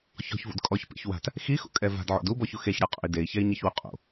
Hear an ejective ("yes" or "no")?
yes